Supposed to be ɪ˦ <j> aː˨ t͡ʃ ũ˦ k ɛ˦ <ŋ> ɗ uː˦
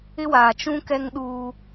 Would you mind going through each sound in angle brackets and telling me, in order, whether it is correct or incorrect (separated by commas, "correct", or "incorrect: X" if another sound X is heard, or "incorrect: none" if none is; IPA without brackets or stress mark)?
incorrect: w, correct